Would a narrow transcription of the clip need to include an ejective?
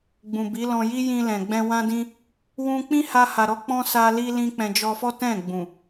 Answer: no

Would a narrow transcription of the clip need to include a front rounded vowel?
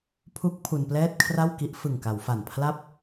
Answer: no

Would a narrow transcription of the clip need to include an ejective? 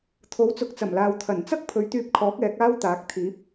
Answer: no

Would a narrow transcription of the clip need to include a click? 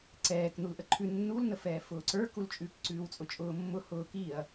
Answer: yes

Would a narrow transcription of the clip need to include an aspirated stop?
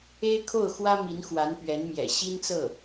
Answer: yes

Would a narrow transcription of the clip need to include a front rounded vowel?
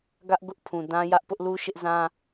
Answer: no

